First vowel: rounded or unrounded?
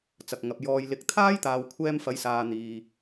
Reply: unrounded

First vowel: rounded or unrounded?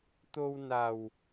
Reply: rounded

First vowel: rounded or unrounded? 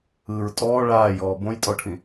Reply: unrounded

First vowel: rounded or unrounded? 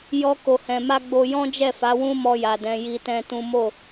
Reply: rounded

